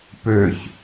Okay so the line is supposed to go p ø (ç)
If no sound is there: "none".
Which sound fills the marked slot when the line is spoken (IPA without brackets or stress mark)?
ç